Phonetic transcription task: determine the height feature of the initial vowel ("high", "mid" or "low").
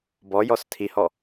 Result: mid